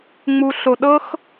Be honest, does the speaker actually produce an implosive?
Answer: yes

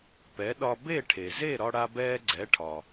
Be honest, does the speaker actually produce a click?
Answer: yes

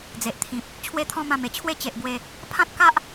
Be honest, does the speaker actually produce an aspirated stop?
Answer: yes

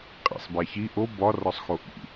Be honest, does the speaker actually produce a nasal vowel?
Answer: no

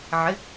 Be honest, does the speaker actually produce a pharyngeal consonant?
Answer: yes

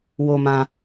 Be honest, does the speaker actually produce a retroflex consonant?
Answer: no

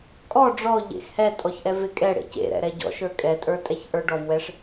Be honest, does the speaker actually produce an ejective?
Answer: yes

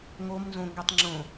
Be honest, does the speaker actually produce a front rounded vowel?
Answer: yes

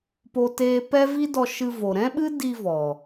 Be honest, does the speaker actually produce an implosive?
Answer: yes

